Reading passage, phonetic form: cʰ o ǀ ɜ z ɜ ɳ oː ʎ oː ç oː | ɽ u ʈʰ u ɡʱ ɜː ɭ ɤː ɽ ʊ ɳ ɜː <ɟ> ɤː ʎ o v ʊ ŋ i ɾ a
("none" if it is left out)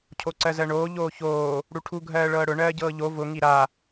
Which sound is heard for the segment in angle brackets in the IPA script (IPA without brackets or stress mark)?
ɟ